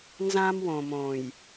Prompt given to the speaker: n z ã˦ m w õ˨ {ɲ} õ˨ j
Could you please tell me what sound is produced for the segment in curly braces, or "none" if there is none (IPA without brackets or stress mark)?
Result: m